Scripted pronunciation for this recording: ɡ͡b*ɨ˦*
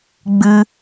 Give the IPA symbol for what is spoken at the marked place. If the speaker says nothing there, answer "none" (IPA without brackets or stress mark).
ɨ˦